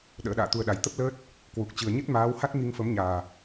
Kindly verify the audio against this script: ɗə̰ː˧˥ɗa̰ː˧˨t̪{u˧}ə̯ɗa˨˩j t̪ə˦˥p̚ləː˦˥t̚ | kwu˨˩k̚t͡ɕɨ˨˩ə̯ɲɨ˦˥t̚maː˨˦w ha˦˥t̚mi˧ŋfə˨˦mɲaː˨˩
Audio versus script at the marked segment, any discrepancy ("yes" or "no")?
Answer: no